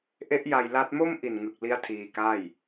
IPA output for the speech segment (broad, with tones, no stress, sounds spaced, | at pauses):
ʔ e˦˥ ʔ j a˧ j l a˦˥ t̚ m o˥˩ m ʔ i˨˩ n ŋ ɯ˨˩ k̚ l i˦˥ a̯ tʰ iː˧ k a˥˩ j